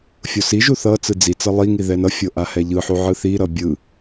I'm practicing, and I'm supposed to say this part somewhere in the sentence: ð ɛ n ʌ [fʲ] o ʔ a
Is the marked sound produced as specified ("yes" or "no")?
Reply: yes